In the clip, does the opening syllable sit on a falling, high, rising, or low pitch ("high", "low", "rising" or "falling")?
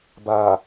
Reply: low